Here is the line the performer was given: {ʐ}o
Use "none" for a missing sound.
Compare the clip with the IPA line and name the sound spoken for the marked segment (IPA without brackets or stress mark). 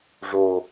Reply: ʐ